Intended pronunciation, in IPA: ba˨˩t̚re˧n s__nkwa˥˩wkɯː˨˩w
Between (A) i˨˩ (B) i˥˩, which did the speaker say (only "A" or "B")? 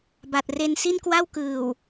B